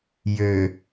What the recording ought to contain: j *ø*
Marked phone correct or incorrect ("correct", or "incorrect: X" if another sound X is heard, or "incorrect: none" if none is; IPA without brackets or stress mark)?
correct